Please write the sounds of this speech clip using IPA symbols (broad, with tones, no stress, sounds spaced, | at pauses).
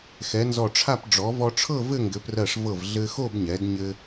x ɛ˩˧ n z ɔ˧˩ ʈ͡ʂʰ a˥˧ p ɖ͡ʐ ɔ˩˧ v ɔ˧ ʈ͡ʂʰ ɤ˥˧ v ɘ˥˧ ŋ ɡ ɘ˩˧ p r ɜ˧˩ ʂ v ɤ˧˩ v ɮ ɘ˧ x o˥˧ b ɲ ɛ˩˧ d ɲ ɘ˧